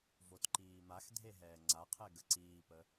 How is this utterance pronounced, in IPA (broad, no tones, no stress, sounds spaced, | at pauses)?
v o t ǃ iː m a x dʱ e ɦ ɛː ŋ͡ǀ a qʰ ɛ ɡ ə ǀ iː p ə